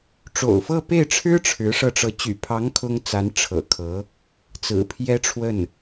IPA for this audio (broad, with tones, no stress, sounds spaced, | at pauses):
ʈ͡ʂ o̰˨˩ ʊ̯ f ɤ˥˧ p e˥˩ ɪ̯ ʈ͡ʂʰ ɻ̩˥ ʈ͡ʂʰ ɻ̩˧˥ ʂ ɤ˧ ʈ͡ʂ ɤ˧˥ t͡ɕ y̰˨˩ pʰ ɑ˧˥ ŋ kʰ ʊ˥ ŋ t͡s a˧˥ n ʈ͡ʂʰ ɤ̰˨˩ kʰ ɤ˧˥ | t͡s ɹ̩˨˩ pʰ j ɛ˥ ʈ͡ʂʰ w ə˥˩ n